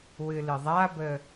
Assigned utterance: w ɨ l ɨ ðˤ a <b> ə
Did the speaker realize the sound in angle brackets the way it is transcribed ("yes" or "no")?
yes